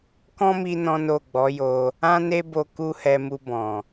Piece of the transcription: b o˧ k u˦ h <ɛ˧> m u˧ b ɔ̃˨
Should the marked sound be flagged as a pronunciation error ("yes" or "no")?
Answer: no